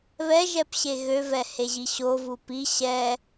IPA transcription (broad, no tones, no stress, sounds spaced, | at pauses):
β ɛ ʒ ɛ p ɕ e ɣ ø v ɛ h e ʑ i ɕ o v u p i ɕ ɛ